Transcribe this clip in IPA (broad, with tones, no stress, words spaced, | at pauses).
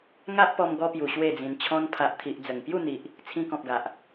ŋa˦ʔpɔ˧mɡɔ˧pju˨˩ ɕwe˥˧d͡zĩ˧n t͡ɕʰɔ̃˧npʰa˨ʔt̪ʰi˨ʔ d͡zə˨˩ŋpju˥˧ n̪i˨ʔ | t͡sʰĩ˧kɔ̃˨p̚ɡa˨ʔ